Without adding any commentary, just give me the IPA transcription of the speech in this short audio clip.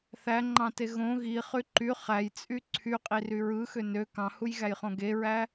θ æ ŋ͡ǃ ɑ̃ t e ɣ õ ɣ i χ y ǃ y χ æ j t͡sʼ y ǀʰ y qʼ i r y ɹ ɯ x ø n ø k ɑ̃ h u j ɣ æ j χ õ ɡ e ɹ æ

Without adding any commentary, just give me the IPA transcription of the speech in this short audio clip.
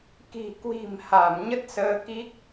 k i̤˨˩ k w i̤˨˩ m h a˧˩ m ɲ ə˦˥ t̚ s əː˧ k i˦˥ k̚

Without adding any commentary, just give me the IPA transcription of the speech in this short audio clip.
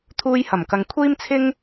t̪ʰ uː˧ j h ɐ˨˩ m k ɐ˨ ŋ kʷʰ iː˥ m t͡sʰ ɪ˥ ŋ

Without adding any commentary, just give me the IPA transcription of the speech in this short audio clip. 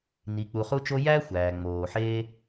n i˨ k͡p u˨ χ u˦ t͡ʃ o˦ j æ˥ xʷ æː˩ ŋ͡m oː˩ ħ eː˥

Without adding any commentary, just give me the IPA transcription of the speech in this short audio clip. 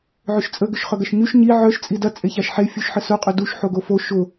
ʕ ʏ ʃ t͡sʼ ə ɡ ʏ ʃ χ œ ɡ ɐ ʃ ɲ y ʃ ɲ i ʕ œ ʃ t͡sʼ i d ɐ t͡sʼ e ç a ʃ ħ e fʲ u ʃ ħ ə s ʊ qʼ ʏ d u ʃ ħ o ɡ o f o ʃ ʊ

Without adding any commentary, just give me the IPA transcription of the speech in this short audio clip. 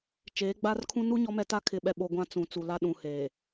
t͡ʃ eː˨˦ ɡ͡b aː˦ r kʰ ũ˦ n u˦ ɲ ɔ˦ m ɛ˦ t a˦ kʰ ɪ˨ ɓ ɛ˨ ɓ o˨ ɡʷ ã˦ t͡s ũ˨ t͡s u˨ l a˦ ɗ ũ˨ h eː˨

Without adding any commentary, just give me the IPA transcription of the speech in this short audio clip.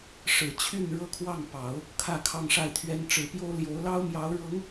ʂ ɻ̩˨˩ t͡ɕʰ y˥˩ n ɻ ɤ˥ kʰ w ɑ˥˩ ŋ p ɑ˨˩˦ ʊ̯ | kʰ ä˥˧ kʰ ɑ˥˧ ŋ ʂ a˥˩ ɪ̯ t̪ʰ ɥ ɛ˥ n ʈ͡ʂ ɻ̩˨˩ p j o˥ ʊ̯ l j o˧˥ ʊ̯ l ɑ˥ ʊ̯ m j ɑ˧˥ ʊ̯ ɻ ɤ˧˥ ŋ

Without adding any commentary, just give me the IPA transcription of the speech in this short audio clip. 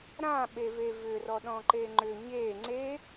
ɾ ã ɓ e v e v ʏ r ɔ ɗ ɔ̃ ǃ e ŋ͡ǃ ʏ ɲ e ŋ͡ǀ e

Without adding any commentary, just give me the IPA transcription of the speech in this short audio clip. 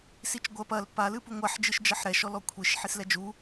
s i t͡ʃ ɡʷ ɐ p ɐ l p a l ɨ p u ŋʷ a ħ d͡ʒ ɨ ʃ d͡ʒ ɐ ħ ɾ ɛ ʃ ɔ l ɔ kʷʰ i ʃ ħ i s l ɛ d͡ʒ u

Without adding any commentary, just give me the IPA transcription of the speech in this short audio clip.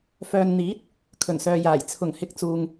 f œː˨ n n̪ iː˨˥ t̚ | kʰ ɵ˨˩ n s œː˨ j aː˨˩ j t͡sʰ ʊ˨˩ ŋ h ɪ˨˥ k̚ t͡s uː˨ ŋ

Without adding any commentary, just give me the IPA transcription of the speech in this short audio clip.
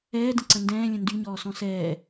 ɛː d ə̃ ǀ ə̃ n d ɛ̃ː lʲ ə̃ n d y ɲ ɔː s ɔ̃ s ɛː

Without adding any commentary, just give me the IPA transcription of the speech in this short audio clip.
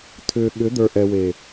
tʰ ʏː˨ ɠ ʏ˨˦ d̪ ə˞˨ ʔ ɛ˨ w eː˨

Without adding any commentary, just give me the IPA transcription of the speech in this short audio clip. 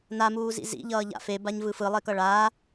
n a m uː z ḭ z ḭ ʎ ʌː ʎ a̰ f e b a ɲ v ɯ f ɯ lˠ e k ʌ ɭ aː

